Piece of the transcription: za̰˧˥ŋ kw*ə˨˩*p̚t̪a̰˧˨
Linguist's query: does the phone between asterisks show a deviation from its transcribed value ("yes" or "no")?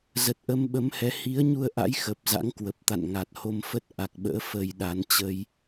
no